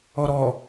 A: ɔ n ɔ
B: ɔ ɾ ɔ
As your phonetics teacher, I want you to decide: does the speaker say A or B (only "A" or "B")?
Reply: B